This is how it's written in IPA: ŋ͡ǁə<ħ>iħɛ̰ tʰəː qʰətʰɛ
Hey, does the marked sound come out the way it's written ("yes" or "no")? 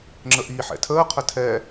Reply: no